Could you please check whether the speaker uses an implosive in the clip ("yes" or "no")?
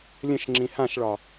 no